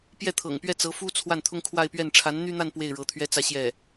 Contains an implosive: no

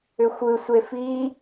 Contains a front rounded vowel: yes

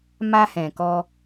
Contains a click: no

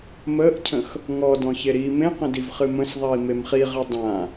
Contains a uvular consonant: yes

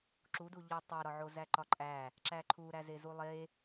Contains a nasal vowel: no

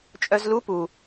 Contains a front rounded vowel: yes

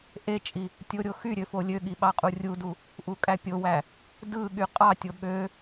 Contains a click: no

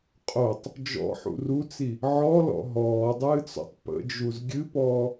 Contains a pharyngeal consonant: yes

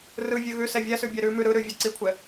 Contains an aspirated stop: yes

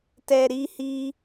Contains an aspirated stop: no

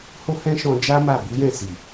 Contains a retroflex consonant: no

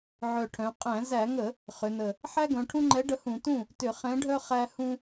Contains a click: yes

